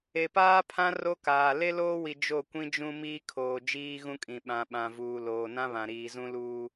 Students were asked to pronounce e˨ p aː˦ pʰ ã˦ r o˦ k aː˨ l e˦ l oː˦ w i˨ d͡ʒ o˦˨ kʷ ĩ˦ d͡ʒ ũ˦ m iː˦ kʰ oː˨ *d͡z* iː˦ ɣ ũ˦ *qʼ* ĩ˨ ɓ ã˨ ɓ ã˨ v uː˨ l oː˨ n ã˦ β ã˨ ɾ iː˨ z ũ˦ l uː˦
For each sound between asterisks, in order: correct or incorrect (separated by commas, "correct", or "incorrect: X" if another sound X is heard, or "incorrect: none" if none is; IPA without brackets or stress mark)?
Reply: incorrect: d͡ʒ, incorrect: kʼ